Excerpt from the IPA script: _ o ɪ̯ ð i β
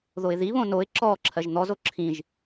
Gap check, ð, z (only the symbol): ð